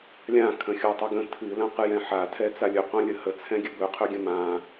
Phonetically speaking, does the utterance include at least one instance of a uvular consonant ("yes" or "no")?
yes